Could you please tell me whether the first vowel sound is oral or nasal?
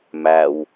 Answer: oral